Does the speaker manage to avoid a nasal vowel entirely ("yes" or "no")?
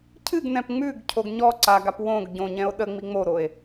no